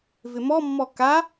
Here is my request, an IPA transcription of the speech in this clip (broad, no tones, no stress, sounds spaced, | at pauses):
v ɪ m ɔ mː ɔ k a